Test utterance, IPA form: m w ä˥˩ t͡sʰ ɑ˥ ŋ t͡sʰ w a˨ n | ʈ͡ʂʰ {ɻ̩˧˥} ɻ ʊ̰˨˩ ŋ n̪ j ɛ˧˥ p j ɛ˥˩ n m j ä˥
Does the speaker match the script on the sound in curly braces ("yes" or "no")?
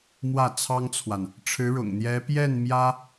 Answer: yes